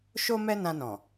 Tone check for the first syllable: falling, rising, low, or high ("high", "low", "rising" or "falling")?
high